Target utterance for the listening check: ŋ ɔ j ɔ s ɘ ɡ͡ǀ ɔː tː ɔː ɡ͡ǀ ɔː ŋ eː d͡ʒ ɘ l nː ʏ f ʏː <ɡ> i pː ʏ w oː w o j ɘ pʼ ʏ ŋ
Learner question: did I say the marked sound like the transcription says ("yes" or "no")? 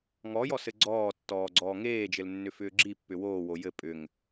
no